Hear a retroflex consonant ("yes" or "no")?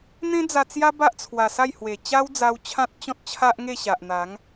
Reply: no